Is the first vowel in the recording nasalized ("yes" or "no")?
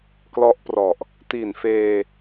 no